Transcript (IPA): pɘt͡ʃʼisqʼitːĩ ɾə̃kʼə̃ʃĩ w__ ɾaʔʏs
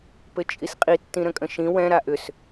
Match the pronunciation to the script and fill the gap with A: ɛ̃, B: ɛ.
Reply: A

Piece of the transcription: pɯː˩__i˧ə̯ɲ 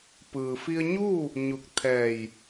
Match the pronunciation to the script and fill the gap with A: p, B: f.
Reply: B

